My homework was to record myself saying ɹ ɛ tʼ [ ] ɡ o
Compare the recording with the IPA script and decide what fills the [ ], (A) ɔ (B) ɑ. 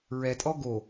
A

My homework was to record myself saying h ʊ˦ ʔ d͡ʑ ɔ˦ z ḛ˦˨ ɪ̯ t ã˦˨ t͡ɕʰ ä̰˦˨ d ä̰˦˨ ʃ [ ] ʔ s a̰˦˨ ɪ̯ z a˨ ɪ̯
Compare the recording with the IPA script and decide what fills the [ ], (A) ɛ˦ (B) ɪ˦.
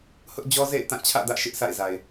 B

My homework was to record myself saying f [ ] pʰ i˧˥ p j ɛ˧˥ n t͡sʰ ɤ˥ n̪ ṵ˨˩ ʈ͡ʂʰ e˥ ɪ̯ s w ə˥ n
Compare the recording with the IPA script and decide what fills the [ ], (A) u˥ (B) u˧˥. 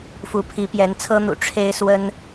B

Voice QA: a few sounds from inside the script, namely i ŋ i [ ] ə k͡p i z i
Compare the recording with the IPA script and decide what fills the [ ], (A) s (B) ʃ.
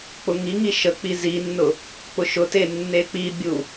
B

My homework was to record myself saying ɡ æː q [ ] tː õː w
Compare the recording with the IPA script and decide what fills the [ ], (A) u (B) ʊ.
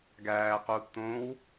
A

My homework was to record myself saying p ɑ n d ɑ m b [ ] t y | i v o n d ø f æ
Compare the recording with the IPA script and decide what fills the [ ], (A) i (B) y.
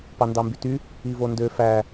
B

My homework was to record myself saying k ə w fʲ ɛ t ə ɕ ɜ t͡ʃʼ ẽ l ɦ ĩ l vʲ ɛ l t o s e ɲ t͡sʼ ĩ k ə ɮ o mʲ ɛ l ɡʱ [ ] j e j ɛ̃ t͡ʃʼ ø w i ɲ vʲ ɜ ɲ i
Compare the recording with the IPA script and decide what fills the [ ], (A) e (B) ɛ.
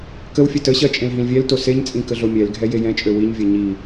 B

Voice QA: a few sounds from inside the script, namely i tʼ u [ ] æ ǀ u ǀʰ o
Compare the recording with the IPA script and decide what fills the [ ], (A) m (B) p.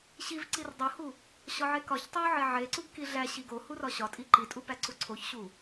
B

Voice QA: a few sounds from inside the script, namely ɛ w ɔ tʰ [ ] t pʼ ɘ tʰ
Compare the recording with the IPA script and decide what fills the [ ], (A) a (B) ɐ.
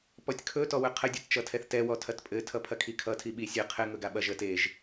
B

